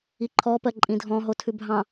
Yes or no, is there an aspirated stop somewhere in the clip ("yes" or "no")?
yes